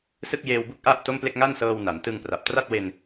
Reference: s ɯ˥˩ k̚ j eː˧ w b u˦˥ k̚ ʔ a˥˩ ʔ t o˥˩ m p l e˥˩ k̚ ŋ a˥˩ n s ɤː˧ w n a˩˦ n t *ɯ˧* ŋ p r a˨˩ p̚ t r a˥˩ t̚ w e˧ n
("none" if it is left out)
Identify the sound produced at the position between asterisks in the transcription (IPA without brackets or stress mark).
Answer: ɯ˧